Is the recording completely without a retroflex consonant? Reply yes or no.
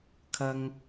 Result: yes